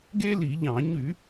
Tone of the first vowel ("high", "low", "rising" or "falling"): high